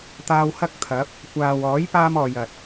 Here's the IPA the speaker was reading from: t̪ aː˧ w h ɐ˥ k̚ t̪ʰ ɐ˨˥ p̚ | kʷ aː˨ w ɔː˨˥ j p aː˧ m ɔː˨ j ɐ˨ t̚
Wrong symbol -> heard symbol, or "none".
none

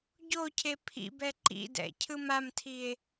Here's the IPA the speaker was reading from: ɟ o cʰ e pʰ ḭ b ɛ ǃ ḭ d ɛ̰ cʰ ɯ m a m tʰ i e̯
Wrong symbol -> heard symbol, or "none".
none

